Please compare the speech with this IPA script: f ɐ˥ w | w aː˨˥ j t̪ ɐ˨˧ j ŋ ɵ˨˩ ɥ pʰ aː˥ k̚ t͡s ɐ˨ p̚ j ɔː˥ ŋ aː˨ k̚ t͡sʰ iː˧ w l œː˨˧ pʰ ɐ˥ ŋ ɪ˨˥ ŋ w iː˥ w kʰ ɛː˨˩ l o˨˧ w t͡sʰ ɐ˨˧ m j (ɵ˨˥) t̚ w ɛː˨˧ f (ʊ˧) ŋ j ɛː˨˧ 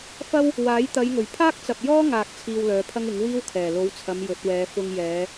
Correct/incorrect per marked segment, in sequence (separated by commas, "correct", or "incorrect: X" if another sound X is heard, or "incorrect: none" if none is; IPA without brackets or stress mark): correct, correct